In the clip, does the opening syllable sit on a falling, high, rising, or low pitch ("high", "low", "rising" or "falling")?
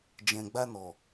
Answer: low